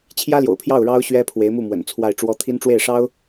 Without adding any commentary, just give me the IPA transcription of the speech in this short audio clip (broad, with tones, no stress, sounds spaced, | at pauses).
t͡ɕʰ j ä˥ l j o̰˨˩ ʊ̯ pʰ j ɑ˥˩ ʊ̯ ɻ ɑ˥ ʊ̯ ɕ ɥ ɛ˥ pʰ w e˧˥ ɪ̯ m u˥˩ m w ə̰˨˩ n t͡sʰ w a˥˩ ɪ̯ ʈ͡ʂ w ɔ˥ t̪ʰ i˥ n ʈ͡ʂ w e˥˩ ɪ̯ ʂ ɑ˥ ʊ̯